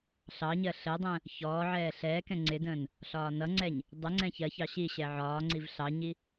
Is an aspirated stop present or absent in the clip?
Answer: absent